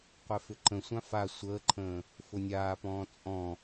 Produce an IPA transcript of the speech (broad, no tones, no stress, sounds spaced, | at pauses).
qʷ ɛ f ʏ ǃ ə̃ sʷ ã f a sʷ əː ǃʰ ə̃ː | f ʊ nʲ aː p ɔ̃ː t͡sʼ ɔ̃